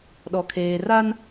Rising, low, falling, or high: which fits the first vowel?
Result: low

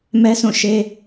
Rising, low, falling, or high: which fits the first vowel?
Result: high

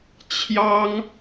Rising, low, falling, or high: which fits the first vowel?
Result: high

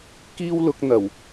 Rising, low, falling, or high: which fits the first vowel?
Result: high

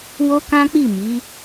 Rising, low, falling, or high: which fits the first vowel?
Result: high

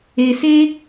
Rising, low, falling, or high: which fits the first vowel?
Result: low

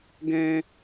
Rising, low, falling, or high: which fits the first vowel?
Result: high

